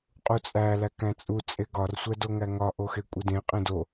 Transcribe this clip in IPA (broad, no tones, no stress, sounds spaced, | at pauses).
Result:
qʼ u t͡sʼ æ l æ k æ̃ t͡sʼ u t͡sʼ e ɡ ɒ r sʷ æ d o ŋ æ ŋ ɒ ʔ o x e kʷʼ i d ẽ qʼ ẽ d o